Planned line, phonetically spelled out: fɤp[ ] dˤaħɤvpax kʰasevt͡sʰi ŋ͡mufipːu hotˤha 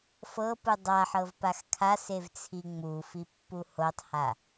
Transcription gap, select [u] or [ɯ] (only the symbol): ɯ